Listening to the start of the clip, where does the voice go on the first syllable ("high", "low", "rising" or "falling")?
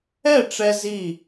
falling